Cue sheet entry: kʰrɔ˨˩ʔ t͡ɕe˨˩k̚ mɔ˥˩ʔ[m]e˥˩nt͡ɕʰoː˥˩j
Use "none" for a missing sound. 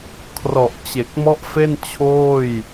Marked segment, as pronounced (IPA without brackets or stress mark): f